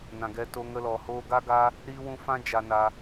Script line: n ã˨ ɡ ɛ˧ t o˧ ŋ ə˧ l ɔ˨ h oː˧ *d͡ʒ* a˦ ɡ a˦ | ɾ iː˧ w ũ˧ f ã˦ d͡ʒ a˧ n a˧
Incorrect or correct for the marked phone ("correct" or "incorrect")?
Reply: incorrect